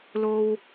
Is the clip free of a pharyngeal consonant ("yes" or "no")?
yes